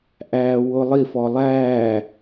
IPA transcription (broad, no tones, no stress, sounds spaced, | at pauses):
ʔ æː w ʊ lˠ i f ɔ lˠ æː